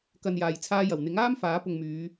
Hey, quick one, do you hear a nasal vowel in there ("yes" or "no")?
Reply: no